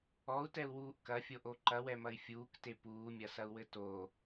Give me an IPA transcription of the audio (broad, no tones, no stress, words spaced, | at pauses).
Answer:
ɔu̯tɛu̯wuːʔ kɐfʲoʔo ǃɐwɛmɐi̯ fʲuːkte puːmʲɐsɐu̯wɘ to